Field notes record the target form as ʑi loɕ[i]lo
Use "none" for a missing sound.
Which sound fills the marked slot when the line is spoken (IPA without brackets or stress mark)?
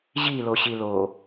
i